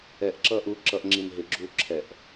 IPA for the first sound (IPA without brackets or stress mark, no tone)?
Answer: ɛ